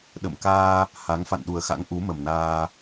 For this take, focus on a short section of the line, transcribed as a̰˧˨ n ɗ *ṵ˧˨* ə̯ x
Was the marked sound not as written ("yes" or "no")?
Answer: yes